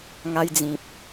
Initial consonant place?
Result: velar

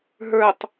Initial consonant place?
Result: glottal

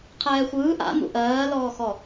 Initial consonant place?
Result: uvular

